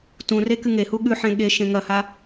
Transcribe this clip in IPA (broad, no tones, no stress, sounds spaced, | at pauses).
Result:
t ũ r e k ɨ ŋ e h u ɠ ʉ ħ ẽ ɠ e ʃ ẽ ŋ ɐ h a